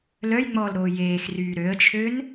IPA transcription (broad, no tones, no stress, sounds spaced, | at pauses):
l œ j ŋ͡m ɔː l ɾ oː j eː x r yː ɾ ø ə̯ t͡ʃʰ ø n